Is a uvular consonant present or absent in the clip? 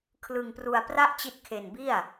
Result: absent